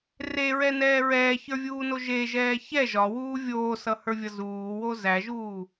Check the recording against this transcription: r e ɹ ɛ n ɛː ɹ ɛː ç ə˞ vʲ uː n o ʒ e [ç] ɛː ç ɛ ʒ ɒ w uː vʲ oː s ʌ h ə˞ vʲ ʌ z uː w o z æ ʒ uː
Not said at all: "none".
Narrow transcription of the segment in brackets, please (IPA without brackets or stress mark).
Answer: ʒ